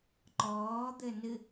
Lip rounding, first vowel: rounded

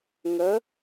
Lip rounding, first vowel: unrounded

